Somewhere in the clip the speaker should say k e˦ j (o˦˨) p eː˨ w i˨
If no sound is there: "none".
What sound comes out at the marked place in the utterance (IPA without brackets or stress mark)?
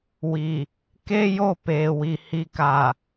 o˦˨